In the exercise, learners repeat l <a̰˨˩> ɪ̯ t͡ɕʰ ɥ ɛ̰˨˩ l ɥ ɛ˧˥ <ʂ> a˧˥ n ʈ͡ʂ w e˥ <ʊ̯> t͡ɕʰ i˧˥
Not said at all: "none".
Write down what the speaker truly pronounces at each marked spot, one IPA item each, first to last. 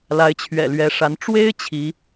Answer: a˧˥, ʂ, ɪ̯

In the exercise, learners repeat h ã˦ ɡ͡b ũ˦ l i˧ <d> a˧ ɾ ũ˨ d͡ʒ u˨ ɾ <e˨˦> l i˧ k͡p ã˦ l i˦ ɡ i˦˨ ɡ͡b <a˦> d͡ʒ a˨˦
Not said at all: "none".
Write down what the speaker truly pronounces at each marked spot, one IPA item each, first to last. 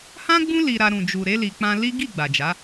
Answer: ɾ, e˨˦, a˨

